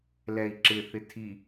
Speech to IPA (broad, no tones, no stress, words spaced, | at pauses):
lɛi̯ǁɪ θɪtʰi